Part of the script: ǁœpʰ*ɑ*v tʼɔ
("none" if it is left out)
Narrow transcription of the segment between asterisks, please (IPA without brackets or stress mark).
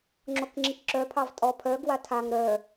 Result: ɑ